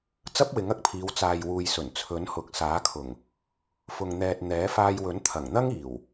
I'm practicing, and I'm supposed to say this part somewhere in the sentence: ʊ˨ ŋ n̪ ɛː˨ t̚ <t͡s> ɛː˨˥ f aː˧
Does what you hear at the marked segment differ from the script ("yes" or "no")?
yes